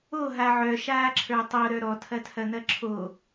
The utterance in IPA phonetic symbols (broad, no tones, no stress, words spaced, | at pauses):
oɦa ʕœʃaːǁʰə˞ tˤoɾœ ɾɔtʰɐtʰɐn̪ɐ ǁʰo